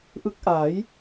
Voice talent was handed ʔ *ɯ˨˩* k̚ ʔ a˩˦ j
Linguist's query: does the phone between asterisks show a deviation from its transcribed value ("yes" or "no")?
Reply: yes